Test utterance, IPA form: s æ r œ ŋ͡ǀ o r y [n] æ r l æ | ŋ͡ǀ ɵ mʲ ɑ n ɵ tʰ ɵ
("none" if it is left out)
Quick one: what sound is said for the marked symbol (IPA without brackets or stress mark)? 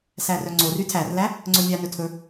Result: tʰ